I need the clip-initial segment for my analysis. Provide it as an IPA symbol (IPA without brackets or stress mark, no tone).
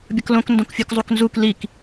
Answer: bʲ